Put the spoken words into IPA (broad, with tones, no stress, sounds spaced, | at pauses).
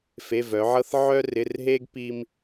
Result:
f e˧˥˧ v œ˨˥ ʕ ɤ˥ θ ʕ œ˥ r ɪ˧˥˧ r ɦ e˥ ɡ p i˥ m